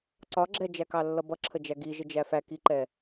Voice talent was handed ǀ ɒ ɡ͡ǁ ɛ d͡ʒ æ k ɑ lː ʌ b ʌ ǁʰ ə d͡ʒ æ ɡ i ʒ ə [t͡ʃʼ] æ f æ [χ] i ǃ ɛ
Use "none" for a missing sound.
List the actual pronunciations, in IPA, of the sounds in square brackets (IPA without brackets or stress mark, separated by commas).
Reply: d͡ʒ, k